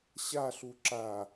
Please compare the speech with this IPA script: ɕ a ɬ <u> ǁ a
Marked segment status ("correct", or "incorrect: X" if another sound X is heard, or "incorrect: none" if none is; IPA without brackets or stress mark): correct